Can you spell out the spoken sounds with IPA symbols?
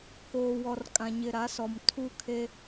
k oː˨ w ɔ˨ r kʼ ã˨ ɲ ɪ˨ ɾ a˨˦ s ɔ˨ m tʰ u˦˨ kʰ e˦

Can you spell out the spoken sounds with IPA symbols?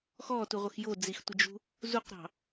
x ɔ t u ʁʷ ə x j o d͡z i x tʷ ə d͡ʒ ṳ | z u q ɾ ɑ̤

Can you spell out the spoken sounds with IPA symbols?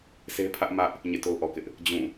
s e˦ pʰ ä˦ ʔ m ä˦ ʔ | ɲ ḛ˦˨ t o˦ ʊ̯ ʔ ɔ˨ k ɪ˦ ʔ | d͡ʑ ũ˦˨

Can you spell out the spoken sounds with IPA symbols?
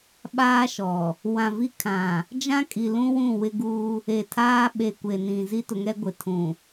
ɓ aː˦ ʃ ɔ˨ | w ã˨ v i˦ kʰ ã˨ | d͡ʒ ã˦ kʼ i˨ l ũ˦ w ũ˦˨ w ɪ˦ ɡ uː˦ | e˨ tʰ aː˦ ɓ e˨ kʷ e˨ n ĩ˨ z i˦ t ʊ˨˦ ŋ ɛ˦ ɡʷ ɪ˨ tʰ ũ˨

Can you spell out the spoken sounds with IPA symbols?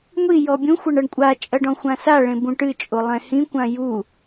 ŋʷ i j ɔ bʲ ũ xʷ ɐ ɳ ɐ ɳ kʷʼ a t͡ʃʼ ɐ ɖ ɔ̃ xʷ ã s a ɭ ẽ b ũ ʈ ɨ t͡ʃʼ o lˠ ɛ̃ h ĩ kʷ ã j u

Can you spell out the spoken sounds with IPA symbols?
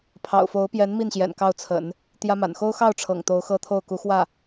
pʰ ɑ̰˨˩ ʊ̯ f o˧˥ ʊ̯ p j ɛ˧˥ n m i˥˩ n ɕ j ɛ̰˨˩ n k ɑ˥˩ ʊ̯ t͡sʰ ə̰˨˩˦ n | t̪ j ä˥ m a̰˨˩ n x o˥ ʊ̯ x ɑ˥˩ ʊ̯ ʈ͡ʂʰ ɤ̰˨˩ ŋ t̪ o˧˥ ʊ̯ x ɤ˥ t̪ʰ o˥˩ ʊ̯ k u˧˥ x w ä˥˩

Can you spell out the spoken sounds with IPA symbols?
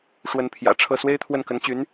ʂ w ə˧˥ n pʰ j ä̰˨˩ ʈ͡ʂʰ ɤ˥˩ s w e˥ ɪ̯ t̪ʰ w ə˥˩ n k ə˧˥ n t͡ɕ y˧˥ n

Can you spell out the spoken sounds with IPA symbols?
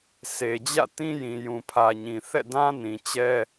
s e˨ d͡ʑ ä̰˦˨ t ĩ˦ j ĩ˨ j ũ˨ pʰ ä˨ ɲ ĩ˨ θ ɛ̰˦˨ d ã˦ n ĩ˨ t͡ɕ ɛ˦

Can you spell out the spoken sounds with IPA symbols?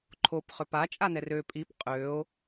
ǃʰ o p χ ø p a t͡ʃʼ a n ɛ r ø pʼ i p qʼ ø o̯

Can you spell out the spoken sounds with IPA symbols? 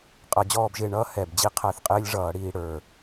qʼ ʌ˧˩˧ d͡ʑ ɔː˦˨ b ʒ ɪː˦˨ ɳ ʌː˧˥ h ɛ˨˩ b d͡ʑ i˧˥ qʰ æ˦˨ θ qʼ ɪː˧˥ lʲ ʐ ʌː˧˩˧ ɽ iː˦˨ ɽ ə˞˨˩

